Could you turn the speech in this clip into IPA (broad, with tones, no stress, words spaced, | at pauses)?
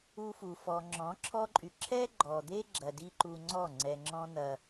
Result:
u˧fu˨ fɔ˨ ŋ͡ǁɔ̃˨˦ǁʰɔ˦ǃʼy˨ ǁʰɛ˦ɡ͡ǃɔ˨d̪e˦ɡ͡ǁɐ˨ di˦ǃu˧ŋ͡ǀɔ˦˨ ŋ͡ǀɛ˨ŋ͡ǁɔ̃˧n̪ɐ˨